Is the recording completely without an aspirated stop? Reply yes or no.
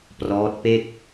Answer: yes